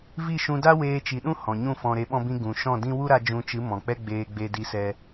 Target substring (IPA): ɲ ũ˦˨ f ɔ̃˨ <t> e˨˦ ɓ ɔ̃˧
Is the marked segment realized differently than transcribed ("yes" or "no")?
yes